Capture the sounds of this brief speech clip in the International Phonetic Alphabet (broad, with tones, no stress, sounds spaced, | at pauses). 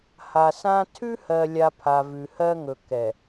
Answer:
h a˨ s ã˦ tʰ ʉ˦ h ɜ˨ lʲ a˨ pʰ a˨ v ʉ˨ h ɜ˦ ŋ ɵ˨ k ɛ˨